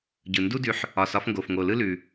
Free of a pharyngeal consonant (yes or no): no